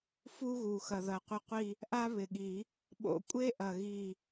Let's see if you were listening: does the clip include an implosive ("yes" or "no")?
yes